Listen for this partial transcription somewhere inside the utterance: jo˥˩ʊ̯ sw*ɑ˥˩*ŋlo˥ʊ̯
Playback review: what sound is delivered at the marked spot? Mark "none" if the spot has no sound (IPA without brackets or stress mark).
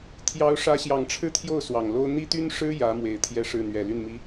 ɑ˨˩